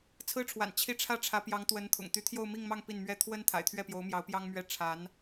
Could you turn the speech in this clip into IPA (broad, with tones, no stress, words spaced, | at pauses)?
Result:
t͡sʰɹ̩˥ʈ͡ʂʰwa̰˨˩n t͡ɕʰi˥˧ ʈ͡ʂʰä˥˩ʈ͡ʂʰä˧˥pjɑ˧˥ŋt̪wə˧˥n t̪ʰʊ̰˨˩ŋ t̪y˧˥t̪ʰjo˥˧ʊ̯mi˥˧ŋmɑ˥˧ŋ pi˥˩nmɥɛ˥ t̪ʰwə˥n t̪ʰa̰˨˩ɪ̯t̪ʰɥɛ˥˩pjo˧˥ʊ̯ mjɑ˧˥ʊ̯pjɑ˥ŋmɥɛ˥˩ ʈ͡ʂʰa˧˥n